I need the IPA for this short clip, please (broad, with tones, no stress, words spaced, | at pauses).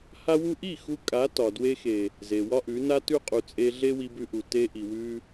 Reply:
ha˧wu˧ʔi˦˨ xu˧kʼa˨˦ tɒ˨ dwe˧xe˨ | ze˨wɒ˦ʔʉ˨˦ na˧tʉ˧qʼu˨ t͡sʼe˧ ɮe˦wi˧bʉ˧ʔu˨ te˧ʔi˨wʉ˧